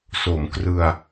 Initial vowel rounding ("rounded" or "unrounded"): rounded